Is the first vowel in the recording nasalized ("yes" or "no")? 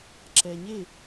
no